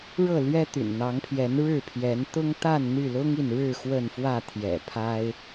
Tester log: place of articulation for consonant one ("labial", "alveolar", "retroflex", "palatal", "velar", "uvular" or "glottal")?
retroflex